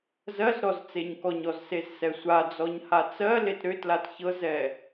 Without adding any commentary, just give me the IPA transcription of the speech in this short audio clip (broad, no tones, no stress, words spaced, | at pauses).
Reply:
zɜz ɾɔzt͡seɲkɔɲɔz sezsɛsʷad͡zɔɲ hat͡sɜlet ɾʏtlat çɤzɛ